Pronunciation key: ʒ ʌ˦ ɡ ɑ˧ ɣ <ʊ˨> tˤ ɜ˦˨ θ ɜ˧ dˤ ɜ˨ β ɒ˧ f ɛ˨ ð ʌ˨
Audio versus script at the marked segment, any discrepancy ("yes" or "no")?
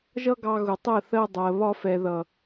no